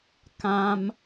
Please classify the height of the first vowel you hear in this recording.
low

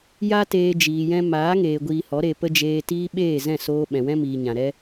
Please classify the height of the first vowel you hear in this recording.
low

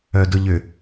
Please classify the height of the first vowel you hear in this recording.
mid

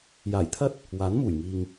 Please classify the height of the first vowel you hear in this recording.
low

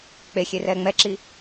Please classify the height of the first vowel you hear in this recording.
mid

